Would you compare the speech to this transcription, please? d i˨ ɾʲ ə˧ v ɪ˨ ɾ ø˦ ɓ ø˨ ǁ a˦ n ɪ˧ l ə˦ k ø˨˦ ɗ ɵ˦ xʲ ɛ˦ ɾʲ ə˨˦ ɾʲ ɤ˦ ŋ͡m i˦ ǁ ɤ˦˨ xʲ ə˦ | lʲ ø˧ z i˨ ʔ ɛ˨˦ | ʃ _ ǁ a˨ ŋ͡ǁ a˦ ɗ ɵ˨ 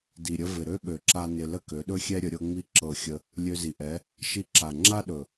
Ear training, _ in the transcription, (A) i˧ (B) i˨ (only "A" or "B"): A